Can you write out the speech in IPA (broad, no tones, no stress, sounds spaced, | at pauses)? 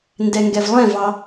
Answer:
n d ɛ ŋ ɡ ɛ v lˠ ɛ̃ v ɑ